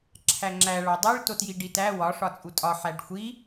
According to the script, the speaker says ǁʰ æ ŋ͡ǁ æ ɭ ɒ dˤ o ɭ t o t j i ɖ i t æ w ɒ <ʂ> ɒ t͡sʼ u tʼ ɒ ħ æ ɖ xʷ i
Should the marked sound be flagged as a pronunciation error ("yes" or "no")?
no